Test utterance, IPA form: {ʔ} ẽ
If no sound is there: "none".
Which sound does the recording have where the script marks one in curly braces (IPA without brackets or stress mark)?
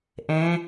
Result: ʔ